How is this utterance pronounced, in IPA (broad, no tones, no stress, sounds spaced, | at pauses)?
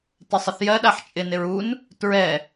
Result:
t ɪ sˤ ɪ θ j ɜ ɗ a ħ t͡ʃʼ ɪ n ɪ ɹ u n | t ɹ ɛ